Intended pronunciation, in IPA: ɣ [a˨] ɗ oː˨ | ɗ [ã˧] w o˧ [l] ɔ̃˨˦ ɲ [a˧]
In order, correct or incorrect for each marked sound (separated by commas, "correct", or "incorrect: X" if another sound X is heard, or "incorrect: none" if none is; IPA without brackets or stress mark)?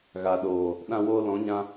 correct, correct, correct, incorrect: ã˧